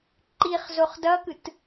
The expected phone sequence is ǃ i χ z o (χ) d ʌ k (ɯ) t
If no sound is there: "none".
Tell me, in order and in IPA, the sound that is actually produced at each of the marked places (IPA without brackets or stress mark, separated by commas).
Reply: χ, ɯ